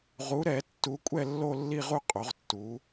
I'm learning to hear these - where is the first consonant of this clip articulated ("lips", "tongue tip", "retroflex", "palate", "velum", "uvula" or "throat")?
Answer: uvula